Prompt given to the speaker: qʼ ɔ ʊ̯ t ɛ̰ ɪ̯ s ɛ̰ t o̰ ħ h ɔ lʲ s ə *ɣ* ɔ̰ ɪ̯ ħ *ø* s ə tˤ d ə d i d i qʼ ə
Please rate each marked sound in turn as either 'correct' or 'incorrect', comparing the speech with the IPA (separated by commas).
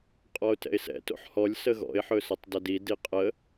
correct, incorrect